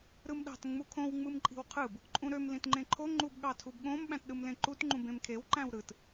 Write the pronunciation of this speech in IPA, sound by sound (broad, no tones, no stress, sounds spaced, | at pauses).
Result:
ɾ ɯ m ɗ ɑ̤ t ŋ͡m u kʰ õ w ŋ͡m ɯ m ǃʼ i̤ w qʰ ɯ b | ǃʼ ũ ɾ ø m l ĩ t ŋ͡ǃ ẽ ǃʰ o ŋ͡ǃ u b ɠ ɑ tʰ u b ɠ õ m ɓ æ̃ t ɗ ɯ m l ẽ ǃ u t ŋ͡ǃ ũ b ẽ m kʰ e w ǃ æ̃ w ɾ ɯ t